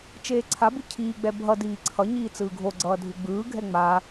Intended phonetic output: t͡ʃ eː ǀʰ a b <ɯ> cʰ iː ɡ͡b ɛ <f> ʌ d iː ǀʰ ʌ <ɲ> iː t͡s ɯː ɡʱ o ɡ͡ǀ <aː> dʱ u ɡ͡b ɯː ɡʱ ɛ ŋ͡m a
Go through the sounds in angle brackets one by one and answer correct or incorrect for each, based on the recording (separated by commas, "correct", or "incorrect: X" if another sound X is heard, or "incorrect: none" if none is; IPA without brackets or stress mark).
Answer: correct, incorrect: bʱ, correct, incorrect: ʌː